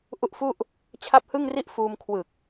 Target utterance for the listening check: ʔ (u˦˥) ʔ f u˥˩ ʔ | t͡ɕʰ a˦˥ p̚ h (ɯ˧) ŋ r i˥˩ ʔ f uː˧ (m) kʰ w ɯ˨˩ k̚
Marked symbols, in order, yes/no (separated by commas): yes, no, yes